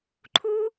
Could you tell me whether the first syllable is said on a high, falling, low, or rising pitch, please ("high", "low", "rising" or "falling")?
high